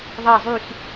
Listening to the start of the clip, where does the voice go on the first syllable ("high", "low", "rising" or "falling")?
falling